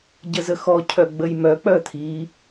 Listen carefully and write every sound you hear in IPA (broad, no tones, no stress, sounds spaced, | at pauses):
ɟ ə z ə x ɔ cʰ œ ɡ͡b ə j m œ k͡p œ t̪ʰ i